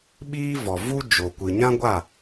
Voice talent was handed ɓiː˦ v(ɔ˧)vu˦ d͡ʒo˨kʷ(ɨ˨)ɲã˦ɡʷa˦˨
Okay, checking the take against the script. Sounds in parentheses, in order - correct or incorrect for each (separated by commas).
incorrect, correct